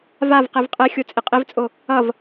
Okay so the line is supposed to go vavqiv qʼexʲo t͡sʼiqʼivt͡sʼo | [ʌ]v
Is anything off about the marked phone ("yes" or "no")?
no